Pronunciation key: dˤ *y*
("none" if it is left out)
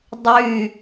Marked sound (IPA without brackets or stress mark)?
y